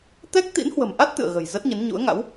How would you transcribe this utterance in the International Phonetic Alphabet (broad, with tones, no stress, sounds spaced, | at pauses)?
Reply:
t̪ ɛ˦˥ k̚ t̪ ḭ˧˥ n h w ə̤˨˩ m ʔ a˦˥ t̚ t̪ ɨ̰˧˨ ə̯ ɣ ə̤˨˩ j z ə˦˥ t̚ ɲ ə˨˦ n ɲ ṵ˧˥ ə̯ ŋ a̰˧˥ w